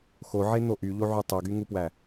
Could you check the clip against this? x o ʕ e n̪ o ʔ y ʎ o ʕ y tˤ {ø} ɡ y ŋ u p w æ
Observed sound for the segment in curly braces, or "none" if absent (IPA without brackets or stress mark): ø